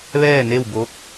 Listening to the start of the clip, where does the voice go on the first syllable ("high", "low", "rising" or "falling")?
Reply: falling